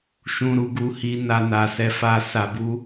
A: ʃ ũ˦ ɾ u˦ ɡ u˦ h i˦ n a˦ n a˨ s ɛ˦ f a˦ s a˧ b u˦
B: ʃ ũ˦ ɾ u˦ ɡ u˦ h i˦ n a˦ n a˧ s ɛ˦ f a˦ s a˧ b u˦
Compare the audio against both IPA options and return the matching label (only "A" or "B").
B